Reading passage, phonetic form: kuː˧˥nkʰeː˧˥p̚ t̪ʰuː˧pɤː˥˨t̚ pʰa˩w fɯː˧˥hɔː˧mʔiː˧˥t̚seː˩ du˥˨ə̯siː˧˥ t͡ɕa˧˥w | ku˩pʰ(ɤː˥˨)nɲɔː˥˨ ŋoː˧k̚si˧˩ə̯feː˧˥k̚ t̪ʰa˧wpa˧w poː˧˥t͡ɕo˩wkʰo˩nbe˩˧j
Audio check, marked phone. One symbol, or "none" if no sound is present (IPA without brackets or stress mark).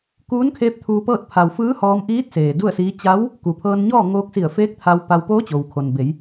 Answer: ɤː˧